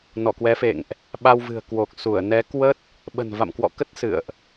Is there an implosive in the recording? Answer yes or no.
yes